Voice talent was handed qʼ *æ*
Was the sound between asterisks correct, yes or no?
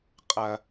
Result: no